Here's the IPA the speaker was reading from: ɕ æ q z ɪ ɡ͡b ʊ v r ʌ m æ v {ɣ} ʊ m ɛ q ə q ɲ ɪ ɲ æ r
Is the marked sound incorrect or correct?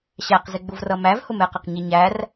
incorrect